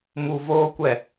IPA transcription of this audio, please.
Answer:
m u˧ v oː˦ kʷ ɛ˦˨

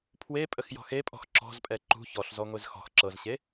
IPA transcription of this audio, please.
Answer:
pʰ w e pʼ ə x j ɔ̤ x e pʼ ɔ̤ x ǁ ɔ̤ z pʼ ɛ ǃ ṳ ç ɔ ɬ z ɔ ŋʷ e z x ɔ̤ x ǁ ɤ z ɕ e

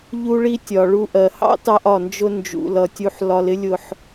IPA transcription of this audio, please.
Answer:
ʎ u˧ ɭ i˧ tʲ ɒ˨ ɭ u˧ ʔ ɜ˨ h ɑ̰˦ t ɑ˧ ʔ ɒ˨ n d͡ʒ ʊ˧ n d͡ʒ ṵ˨ l ʌ˨ tʲ u˧ ħ l ɒ˧ l ɪ˦ lʲ ʊ˧ ħ

